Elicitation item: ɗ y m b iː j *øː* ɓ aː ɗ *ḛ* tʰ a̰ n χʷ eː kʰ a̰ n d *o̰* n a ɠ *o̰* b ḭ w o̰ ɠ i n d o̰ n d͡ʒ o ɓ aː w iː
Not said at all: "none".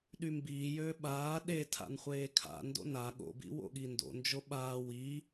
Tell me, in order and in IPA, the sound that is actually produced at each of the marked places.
øː, e, o̰, o̰

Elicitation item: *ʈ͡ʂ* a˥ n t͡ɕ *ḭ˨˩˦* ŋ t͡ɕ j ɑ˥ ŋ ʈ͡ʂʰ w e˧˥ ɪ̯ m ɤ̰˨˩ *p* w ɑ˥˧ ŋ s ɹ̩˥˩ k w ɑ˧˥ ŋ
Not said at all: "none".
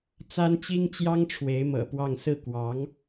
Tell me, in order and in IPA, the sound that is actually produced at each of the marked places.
t͡s, i˥, p

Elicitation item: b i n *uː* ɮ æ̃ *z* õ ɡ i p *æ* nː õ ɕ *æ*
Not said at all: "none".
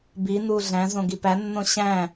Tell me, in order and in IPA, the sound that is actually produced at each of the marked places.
uː, z, æ, æ̃

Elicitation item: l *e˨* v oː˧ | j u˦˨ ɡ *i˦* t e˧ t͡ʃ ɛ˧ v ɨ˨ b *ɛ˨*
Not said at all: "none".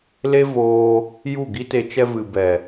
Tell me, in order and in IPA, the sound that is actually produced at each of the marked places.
e˦, i˦, ɛ˨

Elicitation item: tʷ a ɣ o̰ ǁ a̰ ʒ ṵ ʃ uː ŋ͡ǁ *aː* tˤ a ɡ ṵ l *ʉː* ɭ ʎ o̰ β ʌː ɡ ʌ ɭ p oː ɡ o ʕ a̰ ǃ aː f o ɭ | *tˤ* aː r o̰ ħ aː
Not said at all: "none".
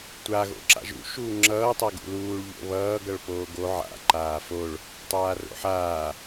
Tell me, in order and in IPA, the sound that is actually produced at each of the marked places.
ʌː, uː, tˤ

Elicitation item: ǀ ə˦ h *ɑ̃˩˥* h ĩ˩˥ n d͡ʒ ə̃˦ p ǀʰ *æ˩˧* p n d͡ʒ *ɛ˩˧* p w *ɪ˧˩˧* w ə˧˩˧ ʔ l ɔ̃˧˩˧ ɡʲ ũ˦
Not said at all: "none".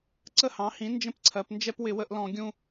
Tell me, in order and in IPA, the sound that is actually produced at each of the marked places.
ɑ̃˩˥, ɜ˩˧, ɛ˦, ɪ˧˩˧

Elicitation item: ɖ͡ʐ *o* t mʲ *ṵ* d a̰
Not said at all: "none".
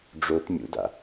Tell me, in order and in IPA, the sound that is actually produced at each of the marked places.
o, ṵ

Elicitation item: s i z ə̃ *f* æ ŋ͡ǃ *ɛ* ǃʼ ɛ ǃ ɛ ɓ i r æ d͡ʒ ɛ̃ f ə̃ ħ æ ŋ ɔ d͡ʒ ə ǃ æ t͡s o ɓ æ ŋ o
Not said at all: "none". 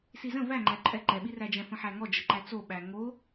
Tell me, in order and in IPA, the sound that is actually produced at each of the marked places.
v, æ

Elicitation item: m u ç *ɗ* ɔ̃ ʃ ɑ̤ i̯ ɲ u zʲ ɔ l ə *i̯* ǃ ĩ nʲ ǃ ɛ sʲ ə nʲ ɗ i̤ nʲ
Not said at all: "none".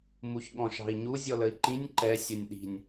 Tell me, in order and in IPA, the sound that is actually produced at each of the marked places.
ɠ, i̯

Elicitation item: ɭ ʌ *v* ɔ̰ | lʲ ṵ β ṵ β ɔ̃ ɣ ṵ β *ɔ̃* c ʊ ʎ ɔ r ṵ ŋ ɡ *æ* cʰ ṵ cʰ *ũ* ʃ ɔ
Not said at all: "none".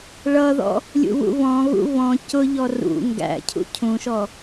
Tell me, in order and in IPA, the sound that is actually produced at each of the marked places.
ð, ɔ̃, æ̰, ũ

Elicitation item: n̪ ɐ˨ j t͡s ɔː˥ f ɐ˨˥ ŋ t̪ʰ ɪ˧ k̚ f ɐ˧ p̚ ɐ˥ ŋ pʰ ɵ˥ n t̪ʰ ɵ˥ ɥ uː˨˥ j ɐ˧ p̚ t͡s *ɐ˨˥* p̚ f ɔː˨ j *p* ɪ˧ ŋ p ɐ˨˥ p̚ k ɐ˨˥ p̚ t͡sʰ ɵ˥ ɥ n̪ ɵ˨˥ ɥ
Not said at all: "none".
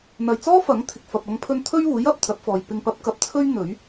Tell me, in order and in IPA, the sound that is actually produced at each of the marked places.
ɐ˨˥, p

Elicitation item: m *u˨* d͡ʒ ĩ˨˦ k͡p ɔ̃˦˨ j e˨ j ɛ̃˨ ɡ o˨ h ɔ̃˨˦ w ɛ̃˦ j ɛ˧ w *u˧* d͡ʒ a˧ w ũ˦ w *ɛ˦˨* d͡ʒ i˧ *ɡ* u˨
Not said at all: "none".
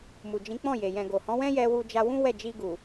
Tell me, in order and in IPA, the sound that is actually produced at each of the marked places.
u˨, u˧, ɛ˦˨, ɡ

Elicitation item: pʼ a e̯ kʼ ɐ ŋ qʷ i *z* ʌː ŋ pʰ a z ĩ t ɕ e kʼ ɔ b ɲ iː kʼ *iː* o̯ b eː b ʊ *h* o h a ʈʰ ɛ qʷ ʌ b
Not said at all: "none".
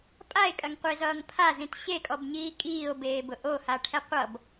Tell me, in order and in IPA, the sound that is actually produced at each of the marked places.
z, iː, ʔ

